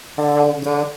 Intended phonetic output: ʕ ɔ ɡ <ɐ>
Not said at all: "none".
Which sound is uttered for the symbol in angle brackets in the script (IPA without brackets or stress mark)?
ɐ